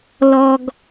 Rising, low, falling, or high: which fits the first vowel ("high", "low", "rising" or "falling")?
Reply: low